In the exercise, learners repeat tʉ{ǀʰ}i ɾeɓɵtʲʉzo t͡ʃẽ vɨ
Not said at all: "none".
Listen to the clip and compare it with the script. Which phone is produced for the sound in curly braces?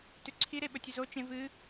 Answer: ǀʰ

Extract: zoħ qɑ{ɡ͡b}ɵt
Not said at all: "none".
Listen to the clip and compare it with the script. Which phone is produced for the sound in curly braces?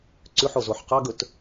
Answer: ɡ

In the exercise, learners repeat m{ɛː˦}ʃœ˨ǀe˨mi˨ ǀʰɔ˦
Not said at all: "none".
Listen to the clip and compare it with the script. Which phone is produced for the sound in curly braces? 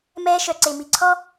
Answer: ɛː˦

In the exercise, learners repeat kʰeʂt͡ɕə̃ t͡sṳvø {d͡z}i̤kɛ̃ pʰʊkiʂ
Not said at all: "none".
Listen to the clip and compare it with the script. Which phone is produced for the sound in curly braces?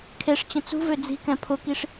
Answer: d͡z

